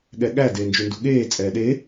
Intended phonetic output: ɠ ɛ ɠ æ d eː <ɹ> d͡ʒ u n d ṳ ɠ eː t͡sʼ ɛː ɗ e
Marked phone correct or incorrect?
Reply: incorrect